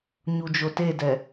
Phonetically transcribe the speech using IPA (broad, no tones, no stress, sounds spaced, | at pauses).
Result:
ɲ u d͡ʒ o t e d ɛ